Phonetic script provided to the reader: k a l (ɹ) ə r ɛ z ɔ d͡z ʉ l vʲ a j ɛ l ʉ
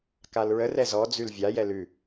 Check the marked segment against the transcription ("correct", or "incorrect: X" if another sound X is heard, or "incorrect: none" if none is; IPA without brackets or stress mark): correct